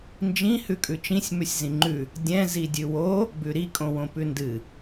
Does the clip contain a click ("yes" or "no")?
yes